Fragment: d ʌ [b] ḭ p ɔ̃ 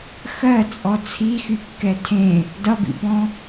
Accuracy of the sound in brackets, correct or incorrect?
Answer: correct